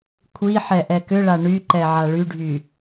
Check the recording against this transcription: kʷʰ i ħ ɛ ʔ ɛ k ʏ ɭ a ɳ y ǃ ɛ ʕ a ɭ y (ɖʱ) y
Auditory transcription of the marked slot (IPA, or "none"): ɖʱ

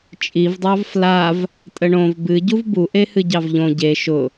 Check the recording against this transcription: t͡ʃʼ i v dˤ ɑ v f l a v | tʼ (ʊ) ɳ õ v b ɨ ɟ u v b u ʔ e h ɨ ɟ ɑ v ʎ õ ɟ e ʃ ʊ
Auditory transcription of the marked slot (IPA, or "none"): ə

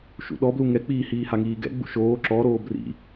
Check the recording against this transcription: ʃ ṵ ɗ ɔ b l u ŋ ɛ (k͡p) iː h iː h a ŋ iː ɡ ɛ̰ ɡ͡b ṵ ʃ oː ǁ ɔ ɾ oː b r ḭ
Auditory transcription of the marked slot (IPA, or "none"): k͡p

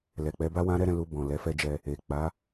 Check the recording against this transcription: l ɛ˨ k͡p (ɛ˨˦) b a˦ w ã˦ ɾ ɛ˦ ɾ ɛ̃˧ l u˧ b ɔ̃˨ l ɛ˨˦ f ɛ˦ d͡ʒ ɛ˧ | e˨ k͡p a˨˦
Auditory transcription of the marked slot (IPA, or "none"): ɛ˨˦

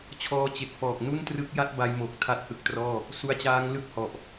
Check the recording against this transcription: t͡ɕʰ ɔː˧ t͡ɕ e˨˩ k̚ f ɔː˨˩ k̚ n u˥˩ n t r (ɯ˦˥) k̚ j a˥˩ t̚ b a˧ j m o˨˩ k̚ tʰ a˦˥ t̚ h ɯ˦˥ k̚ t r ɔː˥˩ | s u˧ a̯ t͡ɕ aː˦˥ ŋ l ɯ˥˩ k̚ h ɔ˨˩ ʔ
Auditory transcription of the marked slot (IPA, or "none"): ɯ˦˥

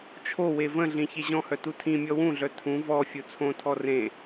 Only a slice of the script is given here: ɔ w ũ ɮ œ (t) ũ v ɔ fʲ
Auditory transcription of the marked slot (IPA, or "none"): tʰ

